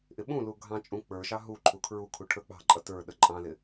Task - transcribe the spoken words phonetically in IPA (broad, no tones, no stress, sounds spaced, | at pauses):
ʔ ɪ ɓ ũ l u ɡʱ ɑ̃ t͡ʃʼ ũ k͡p ə˞ ʃ ɑ ɦ u ǃʰ u kʰ ɹ u kʰ u ʈʰ ə˞ k͡p ɑ̤ ǃʼ ʌ t ə˞ ɗ ə ǃʼ ɑ̃ l ɪ